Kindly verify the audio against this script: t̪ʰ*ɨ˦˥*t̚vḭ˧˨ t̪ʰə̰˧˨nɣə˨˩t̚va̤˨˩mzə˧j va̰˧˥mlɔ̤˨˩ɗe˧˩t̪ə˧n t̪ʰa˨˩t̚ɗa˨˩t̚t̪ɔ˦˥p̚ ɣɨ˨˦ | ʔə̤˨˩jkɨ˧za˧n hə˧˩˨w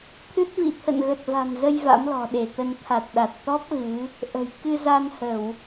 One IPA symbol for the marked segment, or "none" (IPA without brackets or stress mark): ɨ˦˥